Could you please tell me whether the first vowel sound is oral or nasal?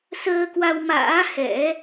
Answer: oral